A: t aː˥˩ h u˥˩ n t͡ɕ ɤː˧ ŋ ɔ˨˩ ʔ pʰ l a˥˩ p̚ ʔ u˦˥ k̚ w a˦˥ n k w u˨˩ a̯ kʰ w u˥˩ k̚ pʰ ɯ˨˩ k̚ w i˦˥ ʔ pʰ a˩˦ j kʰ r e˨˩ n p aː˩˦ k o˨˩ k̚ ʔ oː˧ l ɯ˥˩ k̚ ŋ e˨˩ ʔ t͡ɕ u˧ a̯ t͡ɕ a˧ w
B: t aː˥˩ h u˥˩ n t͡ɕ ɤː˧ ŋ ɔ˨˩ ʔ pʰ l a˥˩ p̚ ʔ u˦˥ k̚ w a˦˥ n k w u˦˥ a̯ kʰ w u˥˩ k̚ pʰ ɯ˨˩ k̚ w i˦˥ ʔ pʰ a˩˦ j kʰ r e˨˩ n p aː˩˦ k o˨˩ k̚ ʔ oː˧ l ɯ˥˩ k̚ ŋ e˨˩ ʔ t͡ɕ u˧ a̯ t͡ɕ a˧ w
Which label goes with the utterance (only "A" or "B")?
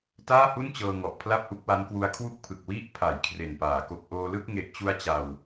B